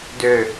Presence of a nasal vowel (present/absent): absent